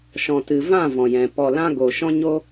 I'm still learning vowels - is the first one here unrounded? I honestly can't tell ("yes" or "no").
no